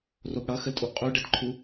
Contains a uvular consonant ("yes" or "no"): yes